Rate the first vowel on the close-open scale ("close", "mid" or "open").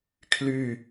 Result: close